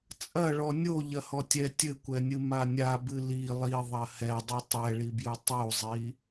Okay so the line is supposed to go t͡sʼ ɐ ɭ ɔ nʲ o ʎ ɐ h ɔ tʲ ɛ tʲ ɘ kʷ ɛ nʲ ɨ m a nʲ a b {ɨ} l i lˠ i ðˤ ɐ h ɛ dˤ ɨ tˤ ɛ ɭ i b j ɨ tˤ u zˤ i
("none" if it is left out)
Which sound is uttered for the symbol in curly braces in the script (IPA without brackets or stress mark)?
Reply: ɨ